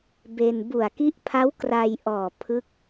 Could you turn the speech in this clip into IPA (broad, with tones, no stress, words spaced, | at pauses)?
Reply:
be˧n bu˨˩a̯ki˦˥ʔpʰa˦˥w kra˧jʔɔː˨˩ pʰɯ˦˥k̚